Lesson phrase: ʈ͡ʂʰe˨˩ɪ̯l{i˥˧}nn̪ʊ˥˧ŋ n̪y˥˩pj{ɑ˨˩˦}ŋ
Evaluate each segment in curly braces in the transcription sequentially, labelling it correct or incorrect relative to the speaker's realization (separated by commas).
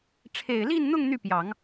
correct, correct